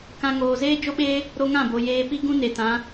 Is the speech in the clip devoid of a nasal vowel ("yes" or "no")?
no